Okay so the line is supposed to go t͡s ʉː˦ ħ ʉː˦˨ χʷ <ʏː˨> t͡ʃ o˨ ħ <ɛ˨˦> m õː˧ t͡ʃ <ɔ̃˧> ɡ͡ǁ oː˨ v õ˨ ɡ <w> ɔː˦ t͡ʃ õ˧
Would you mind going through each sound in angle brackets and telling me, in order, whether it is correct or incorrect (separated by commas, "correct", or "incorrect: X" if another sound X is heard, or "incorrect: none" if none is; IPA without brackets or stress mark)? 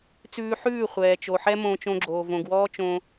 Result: incorrect: ɛː˨, incorrect: ɛ˦, incorrect: õ˧, correct